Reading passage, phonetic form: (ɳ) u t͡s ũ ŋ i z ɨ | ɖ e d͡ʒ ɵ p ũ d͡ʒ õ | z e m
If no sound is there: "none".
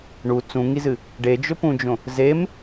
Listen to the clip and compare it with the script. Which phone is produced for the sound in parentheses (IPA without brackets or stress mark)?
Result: ɳ